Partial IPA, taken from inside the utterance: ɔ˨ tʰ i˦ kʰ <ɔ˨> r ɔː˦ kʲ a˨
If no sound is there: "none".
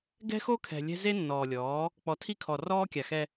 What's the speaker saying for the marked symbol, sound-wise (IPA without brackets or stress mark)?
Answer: ɔ˨